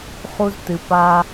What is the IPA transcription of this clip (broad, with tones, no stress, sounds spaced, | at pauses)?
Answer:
χ u˦ z t ɨ˨ p a˦